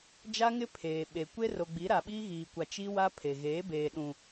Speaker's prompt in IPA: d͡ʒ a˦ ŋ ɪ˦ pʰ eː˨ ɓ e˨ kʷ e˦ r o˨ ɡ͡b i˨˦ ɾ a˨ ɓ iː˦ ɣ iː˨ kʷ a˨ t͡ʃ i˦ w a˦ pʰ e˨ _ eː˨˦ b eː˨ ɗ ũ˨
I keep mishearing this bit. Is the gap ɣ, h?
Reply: ɣ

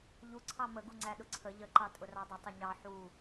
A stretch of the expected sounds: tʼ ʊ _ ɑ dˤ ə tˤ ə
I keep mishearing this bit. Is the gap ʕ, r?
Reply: r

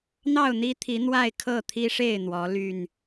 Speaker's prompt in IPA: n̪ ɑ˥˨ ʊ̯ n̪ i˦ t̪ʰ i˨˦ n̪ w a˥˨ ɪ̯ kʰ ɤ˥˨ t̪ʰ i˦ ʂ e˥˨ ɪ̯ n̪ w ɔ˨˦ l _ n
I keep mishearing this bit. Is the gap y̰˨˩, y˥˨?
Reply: y˥˨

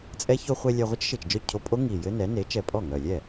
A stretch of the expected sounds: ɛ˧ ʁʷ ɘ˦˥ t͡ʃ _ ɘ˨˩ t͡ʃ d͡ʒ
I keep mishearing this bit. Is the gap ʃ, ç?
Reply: ʃ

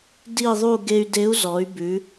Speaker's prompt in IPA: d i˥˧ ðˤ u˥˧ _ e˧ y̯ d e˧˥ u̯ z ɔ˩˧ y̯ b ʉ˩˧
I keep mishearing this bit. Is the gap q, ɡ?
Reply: ɡ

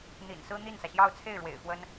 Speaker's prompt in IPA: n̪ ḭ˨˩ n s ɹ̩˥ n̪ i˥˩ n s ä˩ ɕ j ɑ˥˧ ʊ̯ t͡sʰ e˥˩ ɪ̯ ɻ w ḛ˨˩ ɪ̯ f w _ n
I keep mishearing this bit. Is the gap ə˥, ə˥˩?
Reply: ə˥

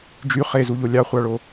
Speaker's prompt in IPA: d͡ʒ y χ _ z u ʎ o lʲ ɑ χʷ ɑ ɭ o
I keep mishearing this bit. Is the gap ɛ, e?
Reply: e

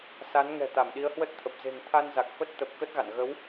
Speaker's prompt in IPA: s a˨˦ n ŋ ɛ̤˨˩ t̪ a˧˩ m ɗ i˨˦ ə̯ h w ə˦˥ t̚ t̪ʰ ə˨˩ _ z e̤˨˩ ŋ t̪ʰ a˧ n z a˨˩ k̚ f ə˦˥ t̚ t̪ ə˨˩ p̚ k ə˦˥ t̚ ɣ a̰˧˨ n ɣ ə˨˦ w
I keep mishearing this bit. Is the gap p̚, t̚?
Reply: p̚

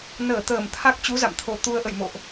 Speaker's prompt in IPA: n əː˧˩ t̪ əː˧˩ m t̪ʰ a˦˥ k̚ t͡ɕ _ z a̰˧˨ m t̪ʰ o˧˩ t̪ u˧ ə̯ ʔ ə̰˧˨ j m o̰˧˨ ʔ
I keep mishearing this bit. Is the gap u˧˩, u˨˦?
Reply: u˨˦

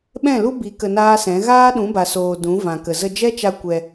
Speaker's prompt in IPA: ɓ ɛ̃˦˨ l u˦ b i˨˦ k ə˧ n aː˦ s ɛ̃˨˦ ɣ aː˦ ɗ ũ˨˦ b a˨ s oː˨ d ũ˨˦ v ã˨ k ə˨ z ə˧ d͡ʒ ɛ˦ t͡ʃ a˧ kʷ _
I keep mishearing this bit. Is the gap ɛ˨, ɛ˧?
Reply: ɛ˧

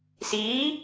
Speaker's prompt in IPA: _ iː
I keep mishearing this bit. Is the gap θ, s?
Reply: s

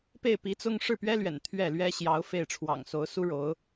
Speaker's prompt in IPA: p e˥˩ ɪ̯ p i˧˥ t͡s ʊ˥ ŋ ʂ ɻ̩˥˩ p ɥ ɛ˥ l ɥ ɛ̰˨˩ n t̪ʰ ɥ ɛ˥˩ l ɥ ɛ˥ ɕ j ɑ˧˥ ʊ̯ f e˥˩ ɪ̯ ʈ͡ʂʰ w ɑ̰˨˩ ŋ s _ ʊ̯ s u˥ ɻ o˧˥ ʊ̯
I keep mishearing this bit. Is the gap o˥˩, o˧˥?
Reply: o˧˥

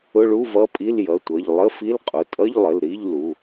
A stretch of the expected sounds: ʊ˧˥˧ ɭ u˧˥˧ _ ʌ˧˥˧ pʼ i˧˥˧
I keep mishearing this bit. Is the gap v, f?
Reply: v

